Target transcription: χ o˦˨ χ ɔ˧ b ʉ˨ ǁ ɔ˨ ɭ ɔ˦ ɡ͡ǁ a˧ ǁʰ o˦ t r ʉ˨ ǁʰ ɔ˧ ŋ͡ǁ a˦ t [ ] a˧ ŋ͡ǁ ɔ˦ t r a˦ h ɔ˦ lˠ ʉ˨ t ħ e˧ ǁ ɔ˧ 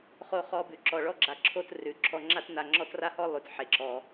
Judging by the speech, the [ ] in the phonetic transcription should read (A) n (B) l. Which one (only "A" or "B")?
A